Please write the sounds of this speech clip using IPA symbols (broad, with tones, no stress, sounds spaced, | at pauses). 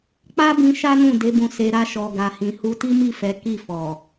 k͡p a˦ b ĩ˧ ʃ a˦ n ũ˦˨ d e˨˦ b ũ˧ s e˧ ɾ a˦ ʃ ɔ˧ ɡ a˧ h ĩ˧ h u˧ t i˦ m i˦˨ f ɛ˨˦ k i˦˨ f ɔ˨